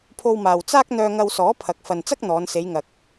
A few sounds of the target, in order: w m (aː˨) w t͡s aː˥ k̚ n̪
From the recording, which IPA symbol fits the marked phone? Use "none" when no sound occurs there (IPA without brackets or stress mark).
aː˨